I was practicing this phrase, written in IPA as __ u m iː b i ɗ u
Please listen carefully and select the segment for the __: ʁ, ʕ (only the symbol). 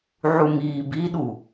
ʕ